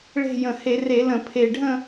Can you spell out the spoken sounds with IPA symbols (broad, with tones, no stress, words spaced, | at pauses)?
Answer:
ɭe̤˥˧ jə̃˨˩he˧˩˧re˧˩˧ lə̃˧˩˧pʰe˨˩ɖʱə̃˥˧